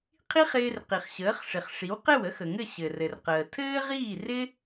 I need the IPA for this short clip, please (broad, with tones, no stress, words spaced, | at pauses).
qʰi˥χɪː˧r qi˩χɕəː˩˥χʂɪ˩χ ʂi˩˥wqɘ˥˩w ə˥xə˩ŋɘ˥˩ ɕɘ˩rɘ˩rqəː˩ tʰɘː˥ʁiː˥˩rɪ˥